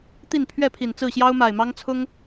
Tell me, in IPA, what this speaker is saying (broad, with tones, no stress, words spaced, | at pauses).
t̪i˥˨npʰɥɛ˥˨pʰi˨˩n t͡sɹ̩˥˨ɕjɑ˦ʊ̯ma˨˩ɪ̯mɑ˦ŋ t͡sʰʊ˦ŋ